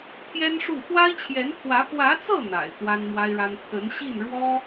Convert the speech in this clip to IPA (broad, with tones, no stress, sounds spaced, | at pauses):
t̪ʰ j ɛ˥ n ʂ u˥˩ x w a˥ ɪ̯ t͡ɕʰ j ɛ˧˥ n t̪ʰ w ä˧˥ p w ä˧˥ t͡s ɤ˥˩ n̪ a̰˨˩ ɪ̯ t̪ w a˥ n m w a˥ ɪ̯ ɻ a˥ n t̪ʰ ə˧˥ n ɕ i˥˩ n ɻ w ɔ˥